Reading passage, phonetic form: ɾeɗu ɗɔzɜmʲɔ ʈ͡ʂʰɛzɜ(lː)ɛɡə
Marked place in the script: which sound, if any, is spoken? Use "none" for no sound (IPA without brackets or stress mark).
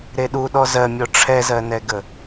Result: n